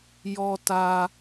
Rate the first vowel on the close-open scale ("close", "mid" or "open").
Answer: mid